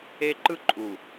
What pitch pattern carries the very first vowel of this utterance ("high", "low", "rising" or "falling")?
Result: high